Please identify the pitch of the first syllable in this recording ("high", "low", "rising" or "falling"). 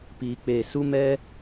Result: low